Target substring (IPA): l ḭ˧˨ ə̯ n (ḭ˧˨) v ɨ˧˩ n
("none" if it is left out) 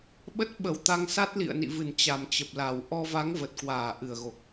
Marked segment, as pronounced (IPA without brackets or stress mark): ḭ˧˨